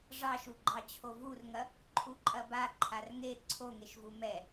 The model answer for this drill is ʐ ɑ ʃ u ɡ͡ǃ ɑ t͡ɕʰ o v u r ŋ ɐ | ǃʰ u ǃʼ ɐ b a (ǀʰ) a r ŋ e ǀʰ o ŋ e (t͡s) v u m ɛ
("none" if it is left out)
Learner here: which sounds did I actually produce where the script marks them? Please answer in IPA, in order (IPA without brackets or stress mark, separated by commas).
ǃʰ, ʃ